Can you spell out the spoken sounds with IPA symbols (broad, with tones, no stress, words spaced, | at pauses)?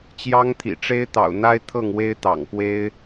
t͡ɕjɑ˦ŋt̪ʰḭ˨˩ ʈ͡ʂe˦ɪ̯t̪ɑ̰˨˩ʊ̯n̪a˦ɪ̯ t̪ʰɤ˥˨ŋ we˦ɪ̯t̪ɑ̰˨˩ŋkwe˦ɪ̯